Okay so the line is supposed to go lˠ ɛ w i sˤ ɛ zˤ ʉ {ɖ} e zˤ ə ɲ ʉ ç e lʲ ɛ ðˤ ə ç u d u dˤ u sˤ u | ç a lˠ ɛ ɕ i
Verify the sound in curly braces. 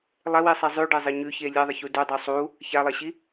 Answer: correct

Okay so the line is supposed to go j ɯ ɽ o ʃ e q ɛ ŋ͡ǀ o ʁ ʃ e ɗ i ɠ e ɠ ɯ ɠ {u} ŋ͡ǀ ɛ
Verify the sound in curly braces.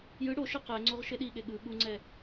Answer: correct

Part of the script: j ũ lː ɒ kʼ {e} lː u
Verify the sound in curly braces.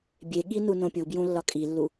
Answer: incorrect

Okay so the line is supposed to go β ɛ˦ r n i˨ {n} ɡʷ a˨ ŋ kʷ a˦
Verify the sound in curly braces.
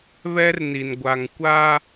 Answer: correct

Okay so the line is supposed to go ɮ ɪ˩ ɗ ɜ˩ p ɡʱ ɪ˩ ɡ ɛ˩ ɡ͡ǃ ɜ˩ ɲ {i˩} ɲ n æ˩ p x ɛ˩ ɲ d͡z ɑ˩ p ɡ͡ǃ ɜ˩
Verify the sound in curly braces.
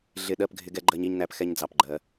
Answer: correct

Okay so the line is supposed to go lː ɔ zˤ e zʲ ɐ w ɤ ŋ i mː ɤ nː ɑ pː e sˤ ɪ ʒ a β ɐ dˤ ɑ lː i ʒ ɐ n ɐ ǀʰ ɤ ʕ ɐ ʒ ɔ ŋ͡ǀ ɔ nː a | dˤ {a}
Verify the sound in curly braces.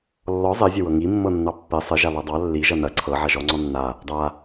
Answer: correct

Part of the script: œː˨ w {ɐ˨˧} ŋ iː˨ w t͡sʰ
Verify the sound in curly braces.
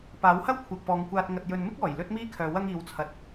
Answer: incorrect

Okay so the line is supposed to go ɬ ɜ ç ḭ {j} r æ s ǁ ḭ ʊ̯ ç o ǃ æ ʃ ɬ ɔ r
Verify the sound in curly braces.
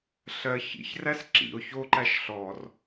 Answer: incorrect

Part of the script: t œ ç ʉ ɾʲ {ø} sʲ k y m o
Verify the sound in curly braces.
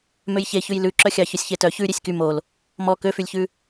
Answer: incorrect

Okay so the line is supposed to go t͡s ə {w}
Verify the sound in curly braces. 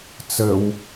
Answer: correct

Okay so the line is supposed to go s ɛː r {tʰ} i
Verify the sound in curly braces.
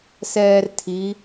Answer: correct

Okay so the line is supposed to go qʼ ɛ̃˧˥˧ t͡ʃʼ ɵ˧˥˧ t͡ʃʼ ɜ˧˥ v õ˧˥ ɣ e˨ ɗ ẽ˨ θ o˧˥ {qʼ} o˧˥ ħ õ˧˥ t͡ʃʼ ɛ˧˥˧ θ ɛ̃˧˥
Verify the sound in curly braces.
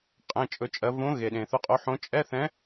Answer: correct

